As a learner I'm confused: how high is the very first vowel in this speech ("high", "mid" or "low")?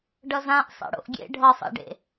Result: mid